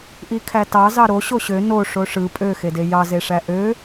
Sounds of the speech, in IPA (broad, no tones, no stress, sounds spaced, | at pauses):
ʔ i kʰ æ t ɑ z ɑ ɾ o ɕ o ɕ ø n o ʂ o ʂ ɯ pʼ ø x e d e j ɑ z e ʂ æ ʔ ø